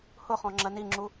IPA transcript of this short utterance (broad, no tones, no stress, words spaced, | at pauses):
hʊχɔ̃ ŋ͡ǁɜniŋ͡ǁu